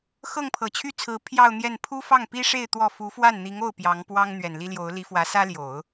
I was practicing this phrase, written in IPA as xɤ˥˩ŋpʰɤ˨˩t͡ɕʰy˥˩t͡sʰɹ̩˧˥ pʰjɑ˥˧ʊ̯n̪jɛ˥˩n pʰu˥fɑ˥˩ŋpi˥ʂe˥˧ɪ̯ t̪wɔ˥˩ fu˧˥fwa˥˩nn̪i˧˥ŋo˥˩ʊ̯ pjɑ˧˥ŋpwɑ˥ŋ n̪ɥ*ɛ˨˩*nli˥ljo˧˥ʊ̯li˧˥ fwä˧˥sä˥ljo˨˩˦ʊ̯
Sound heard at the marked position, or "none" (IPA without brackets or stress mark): ɛ˨˩